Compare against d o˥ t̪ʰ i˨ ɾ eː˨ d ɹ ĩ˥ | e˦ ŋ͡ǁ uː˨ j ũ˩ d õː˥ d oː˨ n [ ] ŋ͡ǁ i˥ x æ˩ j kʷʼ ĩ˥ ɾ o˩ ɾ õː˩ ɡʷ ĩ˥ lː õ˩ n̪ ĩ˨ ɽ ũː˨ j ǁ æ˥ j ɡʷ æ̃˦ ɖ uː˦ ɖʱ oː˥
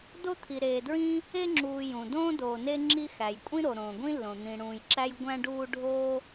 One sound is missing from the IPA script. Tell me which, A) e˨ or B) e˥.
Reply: B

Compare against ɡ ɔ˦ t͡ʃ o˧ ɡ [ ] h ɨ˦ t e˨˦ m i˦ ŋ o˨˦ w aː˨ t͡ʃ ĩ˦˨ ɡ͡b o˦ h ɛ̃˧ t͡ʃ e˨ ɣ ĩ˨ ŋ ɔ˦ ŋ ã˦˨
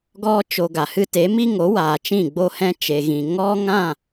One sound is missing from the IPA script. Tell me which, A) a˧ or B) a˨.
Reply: B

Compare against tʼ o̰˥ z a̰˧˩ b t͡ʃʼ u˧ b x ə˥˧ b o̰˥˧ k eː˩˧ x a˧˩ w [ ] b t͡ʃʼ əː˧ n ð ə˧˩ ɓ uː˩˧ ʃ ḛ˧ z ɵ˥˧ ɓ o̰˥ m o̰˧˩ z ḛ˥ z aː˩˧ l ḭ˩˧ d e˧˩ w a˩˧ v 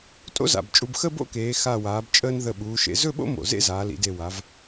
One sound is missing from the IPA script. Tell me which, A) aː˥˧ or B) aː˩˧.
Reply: B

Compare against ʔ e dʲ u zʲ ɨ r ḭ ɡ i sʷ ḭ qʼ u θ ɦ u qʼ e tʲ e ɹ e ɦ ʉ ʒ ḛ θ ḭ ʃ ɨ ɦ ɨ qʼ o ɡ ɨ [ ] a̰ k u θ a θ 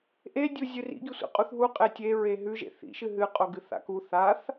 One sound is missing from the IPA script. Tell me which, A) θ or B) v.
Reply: A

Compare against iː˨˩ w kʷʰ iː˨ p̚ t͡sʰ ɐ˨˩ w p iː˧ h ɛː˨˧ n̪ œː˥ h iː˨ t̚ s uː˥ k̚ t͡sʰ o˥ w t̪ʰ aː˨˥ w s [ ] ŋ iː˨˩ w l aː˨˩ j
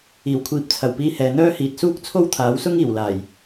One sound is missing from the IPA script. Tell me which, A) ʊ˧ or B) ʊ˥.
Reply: B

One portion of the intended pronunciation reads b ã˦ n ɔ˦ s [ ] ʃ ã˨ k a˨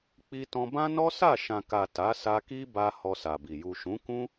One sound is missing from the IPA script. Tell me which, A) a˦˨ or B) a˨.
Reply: A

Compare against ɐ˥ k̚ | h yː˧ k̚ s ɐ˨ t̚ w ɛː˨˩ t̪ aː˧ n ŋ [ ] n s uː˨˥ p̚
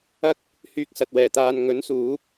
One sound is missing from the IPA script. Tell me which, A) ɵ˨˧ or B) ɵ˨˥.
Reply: B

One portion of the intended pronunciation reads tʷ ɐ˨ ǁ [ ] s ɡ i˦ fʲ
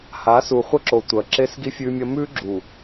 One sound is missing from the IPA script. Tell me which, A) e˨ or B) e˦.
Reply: B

